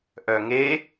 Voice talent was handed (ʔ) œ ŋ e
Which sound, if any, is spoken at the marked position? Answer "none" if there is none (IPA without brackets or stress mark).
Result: ʔ